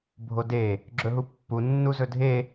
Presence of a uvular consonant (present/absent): absent